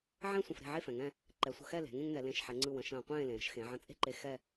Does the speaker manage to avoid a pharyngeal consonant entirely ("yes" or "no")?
no